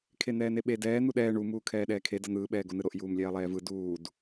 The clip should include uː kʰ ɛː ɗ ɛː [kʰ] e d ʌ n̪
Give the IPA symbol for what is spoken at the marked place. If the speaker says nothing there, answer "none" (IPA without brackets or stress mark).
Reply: kʰ